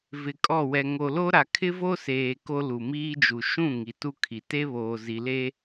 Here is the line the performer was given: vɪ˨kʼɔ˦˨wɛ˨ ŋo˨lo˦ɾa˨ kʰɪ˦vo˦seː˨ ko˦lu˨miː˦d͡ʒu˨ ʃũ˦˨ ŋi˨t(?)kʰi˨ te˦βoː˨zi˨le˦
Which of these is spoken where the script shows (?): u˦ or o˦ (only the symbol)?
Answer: u˦